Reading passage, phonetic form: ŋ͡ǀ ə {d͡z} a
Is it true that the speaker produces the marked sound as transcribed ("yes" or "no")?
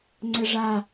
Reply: no